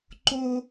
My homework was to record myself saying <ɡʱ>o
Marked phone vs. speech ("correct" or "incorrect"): incorrect